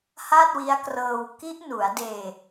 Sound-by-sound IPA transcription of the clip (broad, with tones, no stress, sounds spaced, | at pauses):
h a˥˩ t̚ w i˦˥ a̯ k r ɤː˧ w k i˦˥ ʔ n u˩˦ a̯ d eː˧